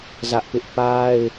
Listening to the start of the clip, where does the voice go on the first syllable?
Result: high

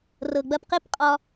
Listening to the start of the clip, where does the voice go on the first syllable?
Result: low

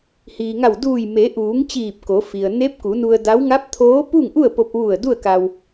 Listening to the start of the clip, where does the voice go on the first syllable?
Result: low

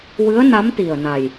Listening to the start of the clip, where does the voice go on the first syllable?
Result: rising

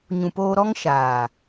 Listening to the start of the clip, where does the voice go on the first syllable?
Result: low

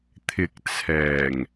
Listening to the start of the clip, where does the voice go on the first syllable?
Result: low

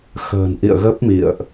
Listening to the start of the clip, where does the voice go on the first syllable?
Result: low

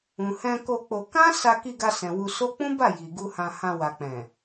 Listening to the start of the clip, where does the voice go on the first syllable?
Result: low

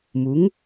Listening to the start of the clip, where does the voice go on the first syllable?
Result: rising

